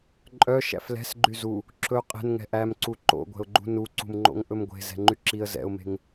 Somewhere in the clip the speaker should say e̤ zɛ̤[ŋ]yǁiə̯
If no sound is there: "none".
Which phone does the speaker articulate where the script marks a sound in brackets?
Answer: ŋ͡ǃ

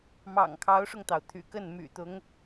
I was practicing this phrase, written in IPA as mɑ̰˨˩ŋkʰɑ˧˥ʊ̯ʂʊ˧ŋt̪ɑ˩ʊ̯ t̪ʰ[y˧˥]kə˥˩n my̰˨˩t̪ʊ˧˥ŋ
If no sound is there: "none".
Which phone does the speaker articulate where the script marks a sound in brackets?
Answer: y̰˨˩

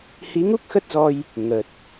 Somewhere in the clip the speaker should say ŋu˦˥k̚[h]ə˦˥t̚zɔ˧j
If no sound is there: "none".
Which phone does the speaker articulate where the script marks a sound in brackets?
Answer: x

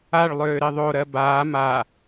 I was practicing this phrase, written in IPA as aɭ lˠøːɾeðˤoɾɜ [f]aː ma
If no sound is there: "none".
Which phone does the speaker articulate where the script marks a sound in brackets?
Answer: b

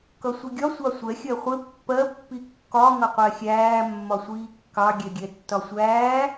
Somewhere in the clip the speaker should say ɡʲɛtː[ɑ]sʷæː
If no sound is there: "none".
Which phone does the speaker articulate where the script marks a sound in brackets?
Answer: ɒ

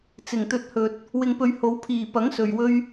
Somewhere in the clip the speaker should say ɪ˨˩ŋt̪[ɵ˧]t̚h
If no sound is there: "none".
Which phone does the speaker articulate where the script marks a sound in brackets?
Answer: ɵ˧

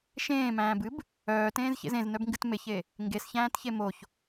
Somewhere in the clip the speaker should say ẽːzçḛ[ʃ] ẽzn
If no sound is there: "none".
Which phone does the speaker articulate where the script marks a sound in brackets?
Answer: z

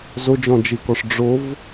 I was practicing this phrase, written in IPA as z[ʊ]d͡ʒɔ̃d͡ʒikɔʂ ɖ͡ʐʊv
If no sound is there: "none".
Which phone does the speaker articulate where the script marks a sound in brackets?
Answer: ʊ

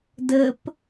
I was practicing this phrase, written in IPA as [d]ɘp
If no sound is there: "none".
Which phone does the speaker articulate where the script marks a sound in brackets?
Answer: d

